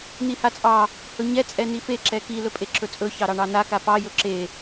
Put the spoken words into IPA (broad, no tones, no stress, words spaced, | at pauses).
n̪ihat͡sʼɑ | hɵɲɛ t͡sʼɛnife ǁɛki lɵpʼeǁɵt͡sʼɵ çɑɾɑɳɑna kapɑ jɵǁe